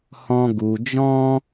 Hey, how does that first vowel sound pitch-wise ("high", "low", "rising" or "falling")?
high